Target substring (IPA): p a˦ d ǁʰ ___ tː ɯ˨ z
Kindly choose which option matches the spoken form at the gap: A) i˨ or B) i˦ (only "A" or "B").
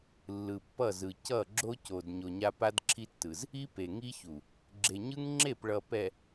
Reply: B